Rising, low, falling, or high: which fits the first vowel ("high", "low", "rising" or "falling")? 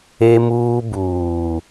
high